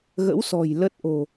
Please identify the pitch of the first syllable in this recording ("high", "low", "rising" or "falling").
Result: rising